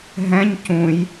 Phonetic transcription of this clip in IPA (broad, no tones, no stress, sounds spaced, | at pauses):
ɦ ɛ̃ ɲ c ũ j